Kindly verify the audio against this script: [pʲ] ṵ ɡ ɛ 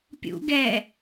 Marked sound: correct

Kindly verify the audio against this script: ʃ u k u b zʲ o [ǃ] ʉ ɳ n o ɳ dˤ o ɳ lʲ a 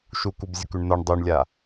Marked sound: incorrect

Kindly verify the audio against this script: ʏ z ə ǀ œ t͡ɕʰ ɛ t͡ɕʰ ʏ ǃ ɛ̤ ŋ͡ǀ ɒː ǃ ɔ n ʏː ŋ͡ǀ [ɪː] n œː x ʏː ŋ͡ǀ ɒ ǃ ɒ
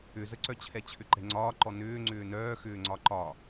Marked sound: incorrect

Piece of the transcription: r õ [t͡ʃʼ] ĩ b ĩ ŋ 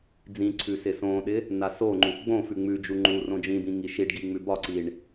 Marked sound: incorrect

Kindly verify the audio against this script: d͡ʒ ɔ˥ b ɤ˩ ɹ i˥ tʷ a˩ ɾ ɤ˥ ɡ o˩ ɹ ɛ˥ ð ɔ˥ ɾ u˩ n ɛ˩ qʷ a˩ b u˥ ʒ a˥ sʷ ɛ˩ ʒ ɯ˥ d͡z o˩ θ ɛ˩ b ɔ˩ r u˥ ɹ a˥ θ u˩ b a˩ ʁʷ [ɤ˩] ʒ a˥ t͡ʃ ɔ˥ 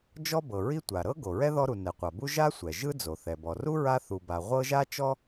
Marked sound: incorrect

